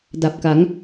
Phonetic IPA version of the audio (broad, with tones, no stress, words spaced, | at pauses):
da˨˩p̚ka˩˦ŋ